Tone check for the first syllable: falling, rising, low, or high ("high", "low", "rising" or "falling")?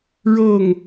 falling